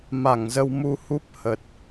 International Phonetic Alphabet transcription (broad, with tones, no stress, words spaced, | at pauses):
ma˧˩ŋzə˧wmu˧hu˦˥p̚ hə˨˩t̚